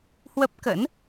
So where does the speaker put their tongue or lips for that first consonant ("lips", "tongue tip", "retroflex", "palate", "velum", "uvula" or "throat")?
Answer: throat